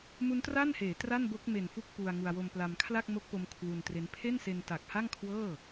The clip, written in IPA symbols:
mu˦˥ntra˥˩nheː˩˦ tra˥˩nbo˦˥k̚ me˨˩nfu˦˥k̚ pu˧a̯ŋu˧a̯ wo˧mpla˧m kʰla˥˩k̚mo˦˥k̚po˧m kʰwu˧ntre˦˥n pʰe˥˩nse˧n ta˨˩k̚ha˥˩ŋkʰwɤː˥˩

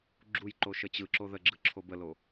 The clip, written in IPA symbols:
ɡ͡ǁujǃo ʃət͡ɕɯǁo ðəɡ͡ǁɯ ǁʰobəlo

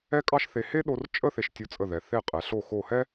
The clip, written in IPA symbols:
ɛ˥kʼɑ˥ʃθe˧ he˥ɗo˧rt͡ʃʼə˥˧ θe˧ʃtʲo˧t͡sʼə˧˩ðɛ˩˧ θe˧˩qʼɛ˩˧ɬo˧˩ xo˧˩hɛ˥

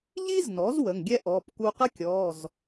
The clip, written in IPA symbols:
ʎi˥znɔ˩˥z wə˩˧˩ŋɡʲɛ˥ʔɔː˩˧˩p ku˧qə˥kʲɔː˩˧˩z

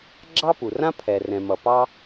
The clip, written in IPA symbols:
ɡ͡ǁɑ˥pu˩rã˥ pʰɛ˩rɛ̃˩ mʌ˩ pɑ˥

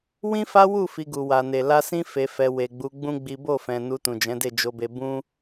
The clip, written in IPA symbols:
wĩ˦fa˦wu˦˨ fi˧ɡu˨wa˨ne˨ la˧sĩ˦ fe˧fɛ˧ we˨ɡ͡bu˨˦ɡ͡bũ˦ ɡ͡bi˦ bo˦˨fɛ̃˨ nu˧tũ˨d͡ʒɛ̃˨˦de˦˨ d͡ʒo˧be˧ bũ˦

